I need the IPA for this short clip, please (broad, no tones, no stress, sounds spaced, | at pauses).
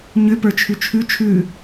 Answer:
ɲ ʏ p ə˞ t͡ʃʰ ʉ t͡ʃʰ ʉ t͡ʃʰ ʉ